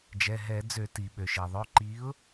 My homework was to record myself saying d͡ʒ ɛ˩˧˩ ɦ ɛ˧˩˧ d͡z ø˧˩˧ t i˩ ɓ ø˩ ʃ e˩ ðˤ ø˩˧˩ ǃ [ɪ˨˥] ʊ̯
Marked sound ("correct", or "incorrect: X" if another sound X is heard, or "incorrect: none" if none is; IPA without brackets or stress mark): incorrect: i˨˥